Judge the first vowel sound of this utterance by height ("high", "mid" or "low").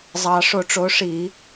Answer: low